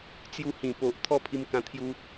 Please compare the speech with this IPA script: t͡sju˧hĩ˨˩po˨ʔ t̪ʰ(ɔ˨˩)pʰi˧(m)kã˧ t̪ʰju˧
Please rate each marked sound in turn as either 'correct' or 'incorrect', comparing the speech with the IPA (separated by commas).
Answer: incorrect, correct